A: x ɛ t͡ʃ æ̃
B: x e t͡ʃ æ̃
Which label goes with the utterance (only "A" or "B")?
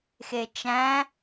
B